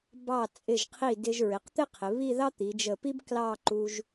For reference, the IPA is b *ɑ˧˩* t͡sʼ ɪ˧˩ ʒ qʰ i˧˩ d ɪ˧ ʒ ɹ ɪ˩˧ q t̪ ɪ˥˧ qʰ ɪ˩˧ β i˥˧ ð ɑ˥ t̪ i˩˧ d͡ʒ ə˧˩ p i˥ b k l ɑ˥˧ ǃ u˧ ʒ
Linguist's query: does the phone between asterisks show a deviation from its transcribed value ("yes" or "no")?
no